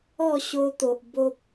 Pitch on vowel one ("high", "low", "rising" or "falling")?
falling